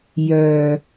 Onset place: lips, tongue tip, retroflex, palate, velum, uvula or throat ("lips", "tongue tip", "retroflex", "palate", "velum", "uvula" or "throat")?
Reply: palate